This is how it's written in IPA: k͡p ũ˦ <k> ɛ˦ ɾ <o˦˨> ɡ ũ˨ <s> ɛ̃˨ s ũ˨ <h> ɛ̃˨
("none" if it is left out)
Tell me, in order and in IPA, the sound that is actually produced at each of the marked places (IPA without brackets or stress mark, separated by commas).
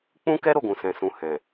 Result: k, o˦˨, s, h